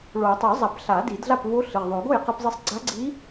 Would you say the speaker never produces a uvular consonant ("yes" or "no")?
no